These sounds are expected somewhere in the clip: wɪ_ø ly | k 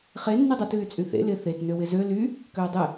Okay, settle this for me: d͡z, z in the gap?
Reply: z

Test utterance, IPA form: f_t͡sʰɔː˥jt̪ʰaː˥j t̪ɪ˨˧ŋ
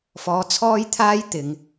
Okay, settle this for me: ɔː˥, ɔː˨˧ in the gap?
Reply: ɔː˨˧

